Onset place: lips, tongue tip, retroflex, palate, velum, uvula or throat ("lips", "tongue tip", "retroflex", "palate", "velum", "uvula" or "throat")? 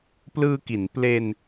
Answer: lips